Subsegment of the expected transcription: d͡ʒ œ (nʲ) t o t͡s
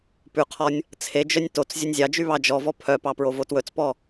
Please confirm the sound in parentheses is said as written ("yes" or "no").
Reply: yes